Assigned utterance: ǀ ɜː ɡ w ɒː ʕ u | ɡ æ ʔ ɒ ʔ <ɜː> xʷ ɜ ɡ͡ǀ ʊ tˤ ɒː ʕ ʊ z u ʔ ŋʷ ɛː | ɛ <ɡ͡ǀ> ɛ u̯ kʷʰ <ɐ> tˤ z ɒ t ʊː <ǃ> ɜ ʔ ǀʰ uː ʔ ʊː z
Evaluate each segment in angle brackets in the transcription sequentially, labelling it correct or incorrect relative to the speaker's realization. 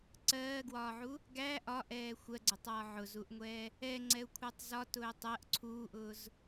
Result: incorrect, incorrect, incorrect, incorrect

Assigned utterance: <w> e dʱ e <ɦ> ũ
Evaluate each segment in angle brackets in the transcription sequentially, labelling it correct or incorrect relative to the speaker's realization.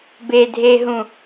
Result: incorrect, correct

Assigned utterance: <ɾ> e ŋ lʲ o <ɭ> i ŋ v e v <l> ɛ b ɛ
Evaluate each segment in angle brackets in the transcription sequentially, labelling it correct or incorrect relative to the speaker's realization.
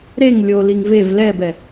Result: correct, incorrect, correct

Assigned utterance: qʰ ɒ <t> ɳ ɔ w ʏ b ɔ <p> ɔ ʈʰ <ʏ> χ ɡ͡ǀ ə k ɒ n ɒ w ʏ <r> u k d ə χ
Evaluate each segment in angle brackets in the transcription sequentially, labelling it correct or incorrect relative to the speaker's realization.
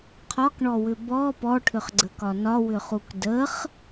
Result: incorrect, correct, correct, incorrect

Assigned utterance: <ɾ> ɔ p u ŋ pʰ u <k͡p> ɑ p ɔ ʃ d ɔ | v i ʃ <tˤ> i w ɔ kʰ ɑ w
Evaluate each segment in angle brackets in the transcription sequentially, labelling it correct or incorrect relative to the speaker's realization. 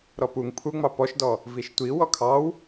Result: correct, incorrect, incorrect

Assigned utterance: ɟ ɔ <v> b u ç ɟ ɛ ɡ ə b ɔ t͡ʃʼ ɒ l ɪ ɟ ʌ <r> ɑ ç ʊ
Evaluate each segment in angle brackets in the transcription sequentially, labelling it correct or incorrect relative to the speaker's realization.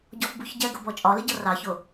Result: incorrect, correct

